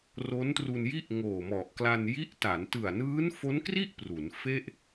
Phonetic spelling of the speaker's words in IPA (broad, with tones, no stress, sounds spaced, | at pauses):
r o˦˥ n t r u˧ n j i˥˩ ʔ ŋ oː˨˩ m ɔ˨˩ ʔ k l a˧ n j i˦˥ ʔ t a˩˦ n t ɯ˨˩ a̯ n ɯː˦˥ n f o˦˥ n k r i˥˩ ʔ p r u˩˦ n f e˥˩ ʔ